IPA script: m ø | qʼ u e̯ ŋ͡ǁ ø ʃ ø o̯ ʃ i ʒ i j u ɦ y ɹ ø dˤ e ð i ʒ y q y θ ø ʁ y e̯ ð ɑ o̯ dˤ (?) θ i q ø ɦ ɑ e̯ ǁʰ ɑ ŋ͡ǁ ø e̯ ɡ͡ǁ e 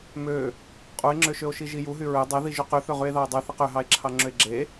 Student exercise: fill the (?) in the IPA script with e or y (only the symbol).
y